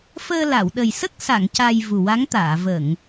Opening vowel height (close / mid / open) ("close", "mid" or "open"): mid